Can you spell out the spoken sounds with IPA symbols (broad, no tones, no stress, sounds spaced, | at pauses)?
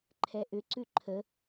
ǃʰ ɛ ʔ ʏ ǀ ʉ ǃʰ ə